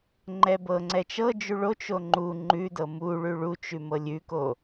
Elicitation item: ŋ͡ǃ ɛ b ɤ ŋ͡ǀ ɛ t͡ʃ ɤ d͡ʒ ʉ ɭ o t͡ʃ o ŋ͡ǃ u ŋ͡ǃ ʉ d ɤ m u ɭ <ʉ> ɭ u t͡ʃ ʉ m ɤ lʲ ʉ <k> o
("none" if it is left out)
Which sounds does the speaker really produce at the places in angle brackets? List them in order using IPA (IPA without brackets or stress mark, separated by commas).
ʉ, k